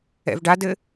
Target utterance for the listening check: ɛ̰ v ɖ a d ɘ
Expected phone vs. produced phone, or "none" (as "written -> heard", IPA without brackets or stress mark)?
none